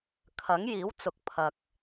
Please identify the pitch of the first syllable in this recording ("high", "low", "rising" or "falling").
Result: rising